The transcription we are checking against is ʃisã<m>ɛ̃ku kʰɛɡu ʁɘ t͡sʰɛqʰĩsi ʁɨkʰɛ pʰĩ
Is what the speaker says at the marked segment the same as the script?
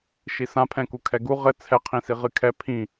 no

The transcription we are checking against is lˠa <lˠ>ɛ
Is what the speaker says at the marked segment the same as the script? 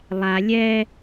no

